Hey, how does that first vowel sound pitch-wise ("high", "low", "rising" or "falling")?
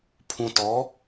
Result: low